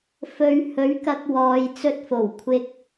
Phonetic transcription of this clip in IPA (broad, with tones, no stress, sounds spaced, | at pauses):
f ɵ˨ ɥ h ɵ˨˥ ɥ k ɐ˧ k̚ w ɔː˨ j t͡s ɵ˧ t̚ f o˨˩ w kʷʰ ɪ˧ k̚